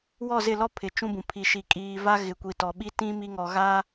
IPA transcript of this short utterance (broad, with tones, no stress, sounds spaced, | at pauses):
w ɔ˦˨ z ɪ˦˨ l ɔ˦ pʰ ɪ˨ t͡ʃ ũ˦ b ũ˨ pʰ i˨ ʃ i˨ kʼ iː˨ v a˦ ɣ ɪ˨ kʷ i˨ t ɔ˨ ɓ i˦ t ĩ˦ m i˦ ŋ ɔ˨ ɣ a˦